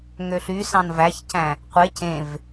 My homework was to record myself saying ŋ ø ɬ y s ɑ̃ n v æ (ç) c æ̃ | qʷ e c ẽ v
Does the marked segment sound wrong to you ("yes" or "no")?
no